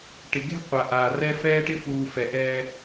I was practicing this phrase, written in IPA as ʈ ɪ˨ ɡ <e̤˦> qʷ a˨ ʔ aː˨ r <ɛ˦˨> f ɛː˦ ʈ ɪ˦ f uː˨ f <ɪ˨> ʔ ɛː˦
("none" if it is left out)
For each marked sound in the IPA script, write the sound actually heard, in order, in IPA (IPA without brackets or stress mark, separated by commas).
e̤˦, ɛ˦, ɛ˨